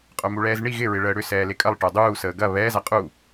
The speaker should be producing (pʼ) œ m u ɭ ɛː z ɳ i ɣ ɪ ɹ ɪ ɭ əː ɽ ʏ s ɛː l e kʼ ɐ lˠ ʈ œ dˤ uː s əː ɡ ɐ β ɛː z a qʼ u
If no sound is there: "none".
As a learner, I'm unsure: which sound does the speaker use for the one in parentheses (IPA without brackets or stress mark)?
qʼ